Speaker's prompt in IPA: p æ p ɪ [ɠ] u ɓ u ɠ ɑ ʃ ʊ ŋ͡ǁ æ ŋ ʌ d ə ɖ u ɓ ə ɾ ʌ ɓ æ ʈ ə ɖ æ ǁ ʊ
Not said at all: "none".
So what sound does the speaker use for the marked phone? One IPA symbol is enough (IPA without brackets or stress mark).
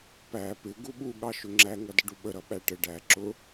ɡ